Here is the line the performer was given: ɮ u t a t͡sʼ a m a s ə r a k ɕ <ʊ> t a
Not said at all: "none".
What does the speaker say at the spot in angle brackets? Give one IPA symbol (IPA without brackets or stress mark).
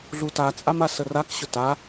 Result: ʊ